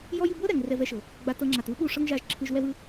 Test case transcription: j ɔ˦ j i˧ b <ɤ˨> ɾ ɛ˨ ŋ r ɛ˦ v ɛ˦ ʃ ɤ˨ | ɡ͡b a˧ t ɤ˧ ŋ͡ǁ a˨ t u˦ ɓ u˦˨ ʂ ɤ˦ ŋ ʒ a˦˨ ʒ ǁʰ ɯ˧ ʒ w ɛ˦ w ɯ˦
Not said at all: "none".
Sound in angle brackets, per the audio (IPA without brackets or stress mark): ɤ˦